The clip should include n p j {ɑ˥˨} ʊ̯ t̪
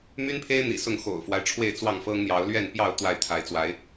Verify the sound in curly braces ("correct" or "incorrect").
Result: correct